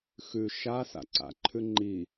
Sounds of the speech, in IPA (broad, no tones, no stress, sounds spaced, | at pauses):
x ʉ ʃ a s a̰ ǀ a̰ ǃʰ ʉ ŋ͡ǃ i